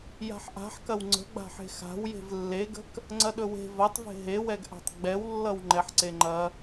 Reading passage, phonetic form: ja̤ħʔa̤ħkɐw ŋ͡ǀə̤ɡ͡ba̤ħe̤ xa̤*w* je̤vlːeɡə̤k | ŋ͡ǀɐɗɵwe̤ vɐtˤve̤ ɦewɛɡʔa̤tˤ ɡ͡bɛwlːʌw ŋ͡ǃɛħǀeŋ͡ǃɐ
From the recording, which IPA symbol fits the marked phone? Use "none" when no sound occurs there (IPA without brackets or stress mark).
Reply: w